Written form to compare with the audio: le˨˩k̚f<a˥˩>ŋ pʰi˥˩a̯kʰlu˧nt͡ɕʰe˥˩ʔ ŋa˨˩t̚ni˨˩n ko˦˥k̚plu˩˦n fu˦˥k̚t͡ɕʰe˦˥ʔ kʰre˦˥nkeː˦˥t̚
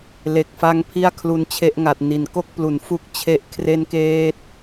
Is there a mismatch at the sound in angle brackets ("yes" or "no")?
yes